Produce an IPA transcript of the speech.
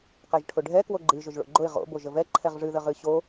q ɛ ʒ ʈʰ ʊ ɖʱ ɛ k w o ɡ͡ǃ ɨ ʒ ʊ ʒ ɭ o̰ ɡ͡ǃ ʊ ɪ̯ ʁ o̰ b o ʒ ə v ɛ ǃʰ ɛ ʁ ʐ ɨ ð ə ʁ ɨ ɕ o

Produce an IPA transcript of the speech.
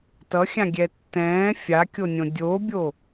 t ʌ xʲ ã ɡʲ ɛ tː ɛ̃ː fʲ a kʲ o nʲ õ dʲ o bʲ o

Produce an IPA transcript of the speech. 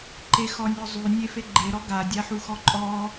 ǃ e x ɔ nʲ ɔ zˤ y nʲ e f e ɡ͡ǃ e ɾ ɔ ɡ a dʲ a ħ u x ɔ ǃʼ ɔ

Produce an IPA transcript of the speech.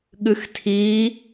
ɠ ɨ x tʰ iː

